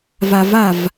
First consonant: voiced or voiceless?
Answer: voiced